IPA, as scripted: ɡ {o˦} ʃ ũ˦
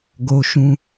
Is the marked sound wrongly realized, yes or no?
no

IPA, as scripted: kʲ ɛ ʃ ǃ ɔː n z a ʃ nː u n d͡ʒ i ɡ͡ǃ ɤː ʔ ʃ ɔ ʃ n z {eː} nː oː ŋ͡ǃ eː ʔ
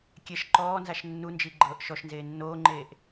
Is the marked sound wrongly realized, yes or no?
no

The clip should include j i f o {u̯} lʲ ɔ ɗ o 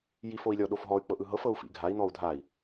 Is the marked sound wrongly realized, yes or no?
yes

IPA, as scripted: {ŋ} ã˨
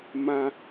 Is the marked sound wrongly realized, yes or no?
yes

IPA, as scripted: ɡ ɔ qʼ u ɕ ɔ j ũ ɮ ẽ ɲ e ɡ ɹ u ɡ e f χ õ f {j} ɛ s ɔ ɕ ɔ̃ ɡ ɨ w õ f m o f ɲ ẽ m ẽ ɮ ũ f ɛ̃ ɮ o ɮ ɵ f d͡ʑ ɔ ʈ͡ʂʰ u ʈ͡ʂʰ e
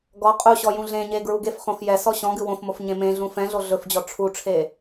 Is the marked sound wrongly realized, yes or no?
no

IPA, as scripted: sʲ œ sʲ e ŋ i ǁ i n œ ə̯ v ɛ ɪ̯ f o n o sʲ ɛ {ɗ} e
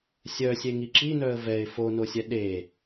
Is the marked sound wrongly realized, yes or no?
no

